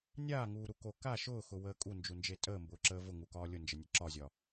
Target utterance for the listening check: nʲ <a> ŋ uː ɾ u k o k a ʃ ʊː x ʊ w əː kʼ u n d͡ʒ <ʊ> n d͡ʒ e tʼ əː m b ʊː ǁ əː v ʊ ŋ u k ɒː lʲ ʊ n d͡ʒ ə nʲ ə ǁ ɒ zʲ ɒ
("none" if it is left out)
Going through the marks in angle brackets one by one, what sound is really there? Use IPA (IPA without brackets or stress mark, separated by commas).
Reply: aː, u